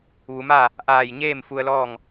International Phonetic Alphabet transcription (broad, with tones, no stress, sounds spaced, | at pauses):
ʋ u˩˧ m a˥˨ | ʔ aː˧˩ j ɲ eː˥˨ m f u˧ ə̯ l ɔː˥˨ ŋ